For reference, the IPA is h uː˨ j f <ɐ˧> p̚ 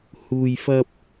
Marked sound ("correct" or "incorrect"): correct